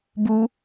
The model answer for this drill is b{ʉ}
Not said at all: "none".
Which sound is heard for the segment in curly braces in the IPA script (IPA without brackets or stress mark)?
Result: u